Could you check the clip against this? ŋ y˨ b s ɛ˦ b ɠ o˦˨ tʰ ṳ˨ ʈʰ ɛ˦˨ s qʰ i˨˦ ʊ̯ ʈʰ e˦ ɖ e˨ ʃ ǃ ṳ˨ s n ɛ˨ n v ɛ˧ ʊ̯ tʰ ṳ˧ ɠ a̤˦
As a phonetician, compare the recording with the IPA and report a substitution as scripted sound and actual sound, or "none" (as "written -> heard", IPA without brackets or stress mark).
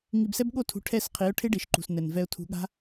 y˨ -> i˨